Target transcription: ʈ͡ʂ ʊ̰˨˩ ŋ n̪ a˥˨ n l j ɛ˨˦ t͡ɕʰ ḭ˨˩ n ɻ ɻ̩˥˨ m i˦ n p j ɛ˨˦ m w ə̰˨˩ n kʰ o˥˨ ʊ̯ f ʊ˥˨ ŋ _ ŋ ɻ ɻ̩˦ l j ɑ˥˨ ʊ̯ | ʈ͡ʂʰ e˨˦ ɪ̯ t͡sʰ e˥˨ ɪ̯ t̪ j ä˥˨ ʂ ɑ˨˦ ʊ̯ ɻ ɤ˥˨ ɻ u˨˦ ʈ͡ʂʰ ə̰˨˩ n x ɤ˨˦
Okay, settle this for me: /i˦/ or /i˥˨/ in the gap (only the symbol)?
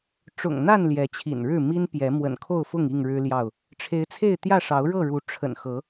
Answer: i˥˨